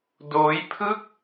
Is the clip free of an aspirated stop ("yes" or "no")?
no